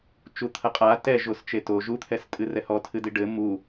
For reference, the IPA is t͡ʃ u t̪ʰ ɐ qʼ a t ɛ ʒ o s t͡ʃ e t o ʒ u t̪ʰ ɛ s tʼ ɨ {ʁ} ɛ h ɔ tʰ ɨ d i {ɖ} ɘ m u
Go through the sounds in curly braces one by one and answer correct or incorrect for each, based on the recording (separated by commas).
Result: incorrect, correct